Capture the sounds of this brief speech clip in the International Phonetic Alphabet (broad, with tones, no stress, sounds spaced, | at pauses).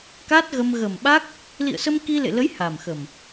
k a˦˥ t̚ ɣ ə˧ m ɣ ə˨˩ m ɓ a˦˥ k̚ | l ḭ˧˨ ə̯ s ə˧ m k i˧ l ḛ˧˨ l ə˨˦ j h a˨˩ m x ə˨˩ m